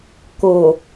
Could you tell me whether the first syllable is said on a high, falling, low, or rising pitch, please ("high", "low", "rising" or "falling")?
low